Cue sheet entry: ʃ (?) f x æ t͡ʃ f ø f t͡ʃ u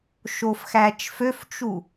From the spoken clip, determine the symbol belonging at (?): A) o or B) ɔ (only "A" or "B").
A